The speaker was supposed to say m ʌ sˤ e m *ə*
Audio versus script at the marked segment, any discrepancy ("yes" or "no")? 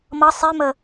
no